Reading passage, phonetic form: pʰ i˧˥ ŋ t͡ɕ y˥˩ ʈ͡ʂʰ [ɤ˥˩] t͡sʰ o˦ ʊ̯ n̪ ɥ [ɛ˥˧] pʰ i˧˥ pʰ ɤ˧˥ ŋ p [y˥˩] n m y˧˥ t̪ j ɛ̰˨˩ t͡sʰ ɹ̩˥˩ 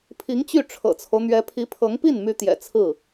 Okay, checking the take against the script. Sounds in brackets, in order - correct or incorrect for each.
incorrect: ɤ̰˨˩, incorrect: ɛ˧˥, incorrect: i˥˩

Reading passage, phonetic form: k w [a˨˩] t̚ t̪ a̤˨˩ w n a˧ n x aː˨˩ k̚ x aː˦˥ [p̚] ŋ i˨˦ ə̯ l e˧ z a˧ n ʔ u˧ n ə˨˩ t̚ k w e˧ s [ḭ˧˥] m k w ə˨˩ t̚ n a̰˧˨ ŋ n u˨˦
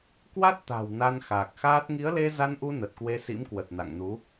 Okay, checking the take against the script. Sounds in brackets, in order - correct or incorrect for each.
incorrect: a˦˥, incorrect: t̚, correct

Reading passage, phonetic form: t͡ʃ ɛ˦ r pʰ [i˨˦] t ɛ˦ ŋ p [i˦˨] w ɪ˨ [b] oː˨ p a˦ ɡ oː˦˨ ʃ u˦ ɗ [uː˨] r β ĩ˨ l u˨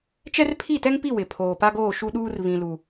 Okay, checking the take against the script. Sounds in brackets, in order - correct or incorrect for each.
incorrect: i˦˨, correct, incorrect: pʰ, incorrect: uː˦

